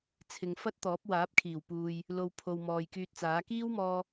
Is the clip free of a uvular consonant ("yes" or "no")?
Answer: yes